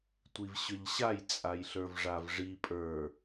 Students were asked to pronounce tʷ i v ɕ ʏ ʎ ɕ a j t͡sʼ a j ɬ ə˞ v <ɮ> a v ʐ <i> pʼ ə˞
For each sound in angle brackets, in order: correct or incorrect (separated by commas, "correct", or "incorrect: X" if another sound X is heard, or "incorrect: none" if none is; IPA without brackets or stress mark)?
incorrect: ʐ, correct